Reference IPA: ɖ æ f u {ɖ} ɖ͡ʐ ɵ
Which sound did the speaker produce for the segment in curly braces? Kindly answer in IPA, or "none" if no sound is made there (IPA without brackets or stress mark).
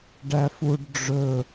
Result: ɖ